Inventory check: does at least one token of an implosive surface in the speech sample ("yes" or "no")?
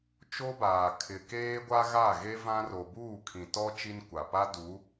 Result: no